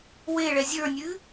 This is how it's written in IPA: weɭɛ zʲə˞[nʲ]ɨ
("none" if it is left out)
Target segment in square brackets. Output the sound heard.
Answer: nʲ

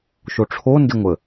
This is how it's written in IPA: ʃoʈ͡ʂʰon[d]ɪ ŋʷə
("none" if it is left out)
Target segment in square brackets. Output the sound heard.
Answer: d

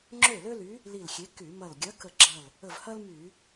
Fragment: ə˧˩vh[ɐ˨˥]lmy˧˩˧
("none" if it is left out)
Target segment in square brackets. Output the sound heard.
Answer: ɐ˥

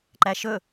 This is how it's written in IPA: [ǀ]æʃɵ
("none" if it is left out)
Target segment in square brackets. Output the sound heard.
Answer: ǃ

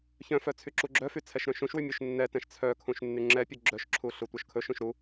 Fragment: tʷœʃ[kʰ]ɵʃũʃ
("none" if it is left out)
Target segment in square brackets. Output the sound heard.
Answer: kʰ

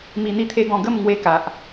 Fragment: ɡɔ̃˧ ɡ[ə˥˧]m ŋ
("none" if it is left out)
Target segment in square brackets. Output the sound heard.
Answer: ə˥˧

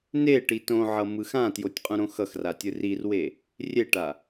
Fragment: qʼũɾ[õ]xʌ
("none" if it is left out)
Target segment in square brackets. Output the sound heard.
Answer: õ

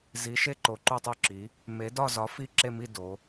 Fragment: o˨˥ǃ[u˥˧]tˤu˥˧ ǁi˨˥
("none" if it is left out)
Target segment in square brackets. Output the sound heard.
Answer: u˥˧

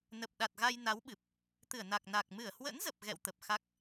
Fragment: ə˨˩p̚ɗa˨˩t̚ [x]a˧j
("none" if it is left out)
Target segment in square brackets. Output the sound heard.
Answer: ɣ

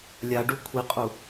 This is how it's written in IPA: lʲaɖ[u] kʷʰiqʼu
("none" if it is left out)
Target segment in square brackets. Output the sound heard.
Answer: u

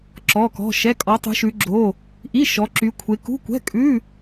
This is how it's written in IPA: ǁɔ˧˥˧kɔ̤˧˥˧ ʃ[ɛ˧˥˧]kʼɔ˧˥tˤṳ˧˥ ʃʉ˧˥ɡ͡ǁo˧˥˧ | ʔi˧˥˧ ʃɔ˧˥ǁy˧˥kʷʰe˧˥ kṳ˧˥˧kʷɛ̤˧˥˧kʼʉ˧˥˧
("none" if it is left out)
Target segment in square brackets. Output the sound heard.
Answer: ɛ˧˥˧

